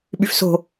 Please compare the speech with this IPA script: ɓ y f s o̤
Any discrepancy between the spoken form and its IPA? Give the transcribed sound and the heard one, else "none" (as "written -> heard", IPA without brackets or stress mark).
none